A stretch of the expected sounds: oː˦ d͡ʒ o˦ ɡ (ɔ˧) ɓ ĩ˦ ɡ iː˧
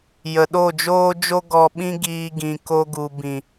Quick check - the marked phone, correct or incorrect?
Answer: correct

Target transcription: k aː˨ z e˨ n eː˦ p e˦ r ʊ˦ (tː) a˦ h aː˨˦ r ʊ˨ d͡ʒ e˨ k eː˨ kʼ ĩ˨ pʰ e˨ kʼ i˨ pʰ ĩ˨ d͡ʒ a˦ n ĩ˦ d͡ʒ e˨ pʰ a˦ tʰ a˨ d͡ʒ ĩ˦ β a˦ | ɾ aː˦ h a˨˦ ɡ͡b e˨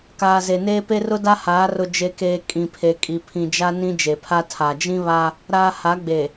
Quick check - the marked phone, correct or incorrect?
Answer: incorrect: d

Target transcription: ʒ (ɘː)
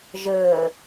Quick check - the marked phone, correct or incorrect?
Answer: correct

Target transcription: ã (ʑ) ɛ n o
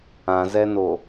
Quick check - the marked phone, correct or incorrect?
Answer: incorrect: z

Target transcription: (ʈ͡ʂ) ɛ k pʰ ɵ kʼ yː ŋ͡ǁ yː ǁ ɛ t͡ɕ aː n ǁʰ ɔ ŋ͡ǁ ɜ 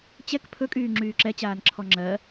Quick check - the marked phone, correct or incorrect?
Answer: incorrect: t͡ɕ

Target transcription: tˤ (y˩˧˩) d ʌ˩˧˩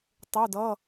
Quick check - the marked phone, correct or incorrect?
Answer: incorrect: u˩˧˩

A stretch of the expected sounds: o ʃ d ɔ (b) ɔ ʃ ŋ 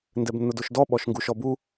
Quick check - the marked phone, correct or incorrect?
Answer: incorrect: ɓ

